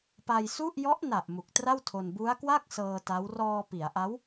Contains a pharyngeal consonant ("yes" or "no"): no